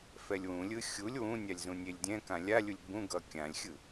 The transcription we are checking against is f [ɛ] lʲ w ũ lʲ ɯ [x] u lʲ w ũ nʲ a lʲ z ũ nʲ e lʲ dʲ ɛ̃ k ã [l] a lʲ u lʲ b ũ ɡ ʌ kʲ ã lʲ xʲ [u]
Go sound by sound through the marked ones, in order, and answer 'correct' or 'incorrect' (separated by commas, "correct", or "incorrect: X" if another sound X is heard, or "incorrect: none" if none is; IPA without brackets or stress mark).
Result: correct, incorrect: xʲ, incorrect: lʲ, incorrect: ɯ